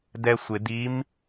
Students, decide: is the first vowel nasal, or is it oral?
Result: oral